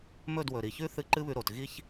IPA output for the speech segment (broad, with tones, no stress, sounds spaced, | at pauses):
m ɵ˦˨ d w ɵ˨ ɾ i˨ ç ʉ˦ θ ɨ˦˨ ǃ ɨ˦ β ʉ˧ ɾ o˨ t ɣ i˦ ç